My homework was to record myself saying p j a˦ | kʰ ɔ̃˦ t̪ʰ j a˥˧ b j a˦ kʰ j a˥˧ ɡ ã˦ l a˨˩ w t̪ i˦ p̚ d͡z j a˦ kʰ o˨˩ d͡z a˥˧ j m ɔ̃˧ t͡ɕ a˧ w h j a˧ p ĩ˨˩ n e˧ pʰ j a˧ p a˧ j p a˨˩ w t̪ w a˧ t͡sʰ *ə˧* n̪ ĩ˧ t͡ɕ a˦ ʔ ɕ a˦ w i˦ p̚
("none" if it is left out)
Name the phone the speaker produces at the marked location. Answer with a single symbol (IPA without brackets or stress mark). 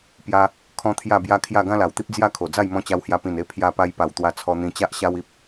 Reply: ɔ˧